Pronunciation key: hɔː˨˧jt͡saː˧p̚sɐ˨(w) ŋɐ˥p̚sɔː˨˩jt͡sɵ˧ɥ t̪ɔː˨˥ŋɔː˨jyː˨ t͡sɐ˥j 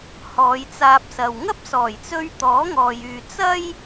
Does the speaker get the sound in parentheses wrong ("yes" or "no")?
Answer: no